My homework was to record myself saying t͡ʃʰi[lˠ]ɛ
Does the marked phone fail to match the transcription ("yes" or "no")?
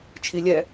yes